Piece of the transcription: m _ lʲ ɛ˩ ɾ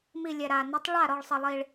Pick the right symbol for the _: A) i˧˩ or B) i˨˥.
A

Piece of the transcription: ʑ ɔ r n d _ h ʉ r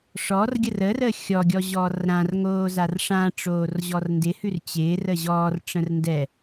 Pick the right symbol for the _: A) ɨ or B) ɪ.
B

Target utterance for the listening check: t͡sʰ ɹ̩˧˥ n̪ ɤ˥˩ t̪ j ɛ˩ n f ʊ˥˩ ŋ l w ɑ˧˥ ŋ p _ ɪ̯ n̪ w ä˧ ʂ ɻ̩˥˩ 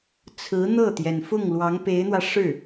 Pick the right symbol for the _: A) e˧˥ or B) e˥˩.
A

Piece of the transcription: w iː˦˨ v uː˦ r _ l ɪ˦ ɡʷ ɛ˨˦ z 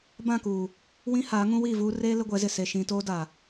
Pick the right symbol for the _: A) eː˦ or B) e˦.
A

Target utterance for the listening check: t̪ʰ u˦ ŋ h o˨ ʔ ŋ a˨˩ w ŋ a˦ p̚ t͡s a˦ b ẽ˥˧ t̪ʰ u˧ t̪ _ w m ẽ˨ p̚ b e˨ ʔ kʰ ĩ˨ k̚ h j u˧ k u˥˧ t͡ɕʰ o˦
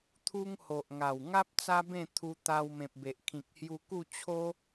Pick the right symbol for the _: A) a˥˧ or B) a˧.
B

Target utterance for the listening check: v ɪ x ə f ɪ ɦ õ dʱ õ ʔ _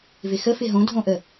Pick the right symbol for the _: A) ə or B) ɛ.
A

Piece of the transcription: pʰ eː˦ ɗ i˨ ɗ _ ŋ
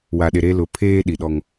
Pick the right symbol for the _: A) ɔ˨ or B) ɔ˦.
B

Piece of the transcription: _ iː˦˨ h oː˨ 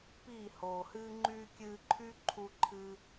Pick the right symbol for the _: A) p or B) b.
A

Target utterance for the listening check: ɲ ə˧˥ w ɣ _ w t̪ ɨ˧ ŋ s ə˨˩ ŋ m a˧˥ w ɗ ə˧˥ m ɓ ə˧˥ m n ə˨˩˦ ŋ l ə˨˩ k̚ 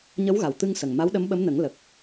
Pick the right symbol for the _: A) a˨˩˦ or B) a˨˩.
B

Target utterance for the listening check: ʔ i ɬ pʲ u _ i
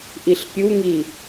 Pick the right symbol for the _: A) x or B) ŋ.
B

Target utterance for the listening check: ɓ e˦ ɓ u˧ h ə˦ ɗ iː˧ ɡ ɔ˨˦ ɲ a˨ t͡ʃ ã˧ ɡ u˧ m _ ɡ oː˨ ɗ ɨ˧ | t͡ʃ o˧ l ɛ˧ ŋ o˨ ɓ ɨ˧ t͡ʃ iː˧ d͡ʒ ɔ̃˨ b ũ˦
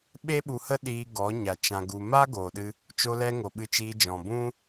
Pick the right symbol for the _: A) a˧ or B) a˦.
B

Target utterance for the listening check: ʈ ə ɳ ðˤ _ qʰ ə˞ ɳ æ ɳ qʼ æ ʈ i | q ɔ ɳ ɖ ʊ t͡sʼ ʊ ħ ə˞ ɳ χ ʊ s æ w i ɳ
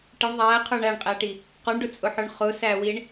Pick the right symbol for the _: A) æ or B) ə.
A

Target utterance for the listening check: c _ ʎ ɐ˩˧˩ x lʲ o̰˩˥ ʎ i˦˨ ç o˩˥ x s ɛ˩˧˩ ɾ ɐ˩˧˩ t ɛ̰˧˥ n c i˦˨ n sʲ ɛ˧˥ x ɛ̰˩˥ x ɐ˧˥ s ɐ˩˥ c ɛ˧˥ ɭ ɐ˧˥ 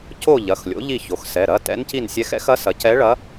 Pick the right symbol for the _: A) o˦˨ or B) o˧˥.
A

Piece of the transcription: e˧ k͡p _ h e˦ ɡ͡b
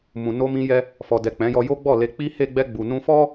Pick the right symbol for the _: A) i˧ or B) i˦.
B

